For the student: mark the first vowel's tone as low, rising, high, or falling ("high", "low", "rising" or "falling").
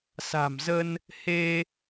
low